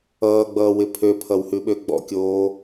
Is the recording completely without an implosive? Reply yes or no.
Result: no